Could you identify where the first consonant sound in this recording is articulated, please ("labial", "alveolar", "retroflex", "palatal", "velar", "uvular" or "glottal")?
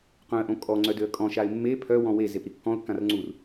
uvular